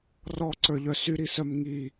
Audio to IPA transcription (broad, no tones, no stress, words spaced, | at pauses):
rɔǀə˞ʎœ syɾisœm ŋi